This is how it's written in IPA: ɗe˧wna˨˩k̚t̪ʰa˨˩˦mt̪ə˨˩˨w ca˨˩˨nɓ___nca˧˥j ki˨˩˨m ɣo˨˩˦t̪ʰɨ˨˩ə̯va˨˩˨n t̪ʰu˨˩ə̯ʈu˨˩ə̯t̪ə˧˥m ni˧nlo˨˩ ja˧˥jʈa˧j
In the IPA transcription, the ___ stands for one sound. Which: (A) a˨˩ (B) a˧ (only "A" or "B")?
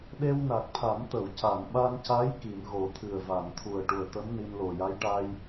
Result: B